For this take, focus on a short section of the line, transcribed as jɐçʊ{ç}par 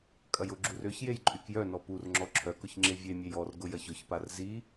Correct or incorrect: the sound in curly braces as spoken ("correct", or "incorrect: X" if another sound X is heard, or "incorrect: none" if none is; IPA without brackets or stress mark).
correct